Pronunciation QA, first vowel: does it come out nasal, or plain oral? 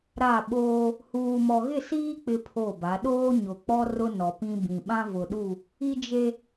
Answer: oral